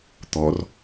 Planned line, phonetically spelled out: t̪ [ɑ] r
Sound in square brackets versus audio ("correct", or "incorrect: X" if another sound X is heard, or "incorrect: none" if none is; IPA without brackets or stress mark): incorrect: ɔ